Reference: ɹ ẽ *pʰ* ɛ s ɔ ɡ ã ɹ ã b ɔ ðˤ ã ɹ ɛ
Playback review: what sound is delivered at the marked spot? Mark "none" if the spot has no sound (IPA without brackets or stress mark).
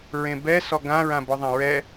b